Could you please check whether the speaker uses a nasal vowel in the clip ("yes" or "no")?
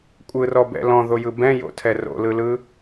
yes